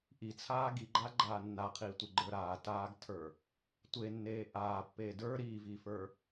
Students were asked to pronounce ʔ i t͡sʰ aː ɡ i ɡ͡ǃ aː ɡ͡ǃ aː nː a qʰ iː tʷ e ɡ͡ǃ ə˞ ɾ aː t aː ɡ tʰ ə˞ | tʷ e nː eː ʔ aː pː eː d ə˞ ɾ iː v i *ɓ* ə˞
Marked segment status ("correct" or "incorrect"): incorrect